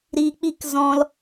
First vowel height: high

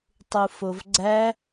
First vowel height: high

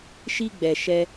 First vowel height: high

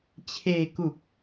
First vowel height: mid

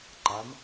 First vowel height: low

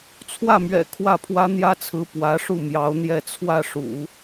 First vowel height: low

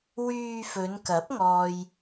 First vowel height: high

